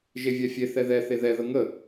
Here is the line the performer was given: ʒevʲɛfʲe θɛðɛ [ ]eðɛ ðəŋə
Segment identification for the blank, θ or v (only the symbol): θ